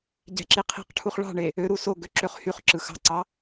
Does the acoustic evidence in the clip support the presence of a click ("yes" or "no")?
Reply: yes